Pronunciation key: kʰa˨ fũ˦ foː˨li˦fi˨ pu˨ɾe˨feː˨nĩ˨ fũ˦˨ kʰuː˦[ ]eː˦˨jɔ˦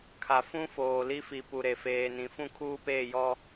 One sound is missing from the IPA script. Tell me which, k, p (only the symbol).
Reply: p